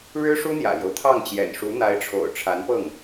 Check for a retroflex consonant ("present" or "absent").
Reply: present